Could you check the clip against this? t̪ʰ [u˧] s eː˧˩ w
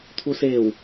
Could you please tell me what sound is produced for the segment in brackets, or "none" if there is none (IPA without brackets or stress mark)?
u˧